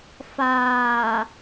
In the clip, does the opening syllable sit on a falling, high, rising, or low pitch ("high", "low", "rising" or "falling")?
low